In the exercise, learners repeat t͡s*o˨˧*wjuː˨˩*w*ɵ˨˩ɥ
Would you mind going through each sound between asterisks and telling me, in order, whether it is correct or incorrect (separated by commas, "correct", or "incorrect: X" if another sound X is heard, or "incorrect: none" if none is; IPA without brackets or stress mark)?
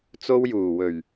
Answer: incorrect: o˥, correct